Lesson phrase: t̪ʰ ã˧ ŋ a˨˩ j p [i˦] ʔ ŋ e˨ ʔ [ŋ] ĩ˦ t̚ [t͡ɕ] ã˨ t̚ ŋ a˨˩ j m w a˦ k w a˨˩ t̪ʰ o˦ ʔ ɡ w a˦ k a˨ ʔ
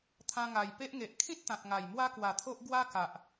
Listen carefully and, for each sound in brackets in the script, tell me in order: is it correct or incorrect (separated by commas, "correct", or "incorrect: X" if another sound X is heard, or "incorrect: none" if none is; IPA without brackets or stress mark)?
incorrect: e˦, incorrect: kʰ, incorrect: t̪